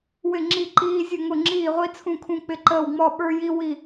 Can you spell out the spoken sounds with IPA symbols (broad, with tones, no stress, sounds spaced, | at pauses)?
w ɪ˧˩ ŋ͡ǁ i˧˩ ǃ iː˧ zʲ ʊ˧˩ ŋ ʊ˧˩ ŋ͡ǁ iː˧˩ ʁʷ i˧ t͡sʰ ũ˧˩ kʰ ũ˧˩ k͡p ɪ˧˩ ǃ əː˧˩ w ŋ͡m ɔ˧˩ ɓ ə˞˧ j i˧ w i˧˩